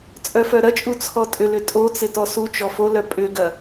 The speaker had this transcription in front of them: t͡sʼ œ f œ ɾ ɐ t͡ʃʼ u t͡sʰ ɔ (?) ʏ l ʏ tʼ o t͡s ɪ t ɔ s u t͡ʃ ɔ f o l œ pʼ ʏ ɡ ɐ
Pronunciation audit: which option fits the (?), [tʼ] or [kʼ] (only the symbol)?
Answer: tʼ